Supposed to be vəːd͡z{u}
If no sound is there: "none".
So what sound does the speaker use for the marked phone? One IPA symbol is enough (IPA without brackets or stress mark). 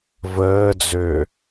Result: ø